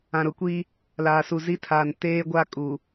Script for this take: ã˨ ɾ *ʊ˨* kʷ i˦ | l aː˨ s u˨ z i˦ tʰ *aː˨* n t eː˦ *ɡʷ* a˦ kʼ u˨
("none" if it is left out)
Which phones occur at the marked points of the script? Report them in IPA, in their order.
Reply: ʊ˨, aː˨, ɡʷ

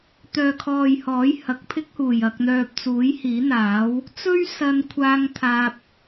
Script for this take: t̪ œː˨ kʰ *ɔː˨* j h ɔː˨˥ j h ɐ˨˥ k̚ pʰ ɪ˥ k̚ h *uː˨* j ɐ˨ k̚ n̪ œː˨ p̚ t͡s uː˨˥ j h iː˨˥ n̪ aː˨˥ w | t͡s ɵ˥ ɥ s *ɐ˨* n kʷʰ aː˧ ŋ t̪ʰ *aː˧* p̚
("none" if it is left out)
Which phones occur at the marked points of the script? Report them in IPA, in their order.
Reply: ɔː˨, uː˨˩, ɐ˧, aː˧

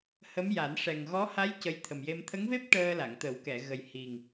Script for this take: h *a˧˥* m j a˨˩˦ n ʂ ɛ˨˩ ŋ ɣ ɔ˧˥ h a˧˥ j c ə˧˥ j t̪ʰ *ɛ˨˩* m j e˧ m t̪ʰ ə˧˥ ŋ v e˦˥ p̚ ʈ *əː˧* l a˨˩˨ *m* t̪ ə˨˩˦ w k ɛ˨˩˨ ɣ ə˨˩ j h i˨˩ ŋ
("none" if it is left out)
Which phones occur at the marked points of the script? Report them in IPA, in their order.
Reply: ə˧˥, ə˨˩, əː˧, ŋ

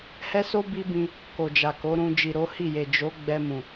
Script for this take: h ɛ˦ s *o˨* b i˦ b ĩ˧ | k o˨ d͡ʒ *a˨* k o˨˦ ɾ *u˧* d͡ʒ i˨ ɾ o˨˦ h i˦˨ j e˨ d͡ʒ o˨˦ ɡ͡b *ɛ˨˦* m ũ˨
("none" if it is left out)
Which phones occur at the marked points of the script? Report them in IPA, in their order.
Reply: o˦, a˨, ũ˧, ɛ˧

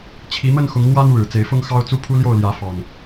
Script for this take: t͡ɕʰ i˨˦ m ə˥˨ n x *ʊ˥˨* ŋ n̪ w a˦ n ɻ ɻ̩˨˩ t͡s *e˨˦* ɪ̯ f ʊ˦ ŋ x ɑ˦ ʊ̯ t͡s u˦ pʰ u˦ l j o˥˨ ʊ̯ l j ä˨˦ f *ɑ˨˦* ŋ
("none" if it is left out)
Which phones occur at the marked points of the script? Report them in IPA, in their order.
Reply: ʊ˨˦, e˨˦, ɑ˨˩

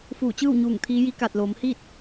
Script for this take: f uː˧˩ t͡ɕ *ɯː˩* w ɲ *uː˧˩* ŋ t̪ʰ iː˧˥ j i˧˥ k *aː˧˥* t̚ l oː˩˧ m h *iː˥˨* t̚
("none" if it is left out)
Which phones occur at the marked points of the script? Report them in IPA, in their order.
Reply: ɯː˥˨, uː˧˩, aː˧˩, iː˥˨

